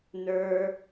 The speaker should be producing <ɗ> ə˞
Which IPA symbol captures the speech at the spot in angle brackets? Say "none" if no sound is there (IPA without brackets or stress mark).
n